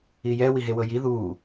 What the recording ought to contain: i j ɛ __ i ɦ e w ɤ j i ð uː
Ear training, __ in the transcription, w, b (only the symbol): w